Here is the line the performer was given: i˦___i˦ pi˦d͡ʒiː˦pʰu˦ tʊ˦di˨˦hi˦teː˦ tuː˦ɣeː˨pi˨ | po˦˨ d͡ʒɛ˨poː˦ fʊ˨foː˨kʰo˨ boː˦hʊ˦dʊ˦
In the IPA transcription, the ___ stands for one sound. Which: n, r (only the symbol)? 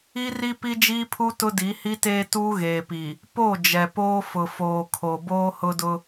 r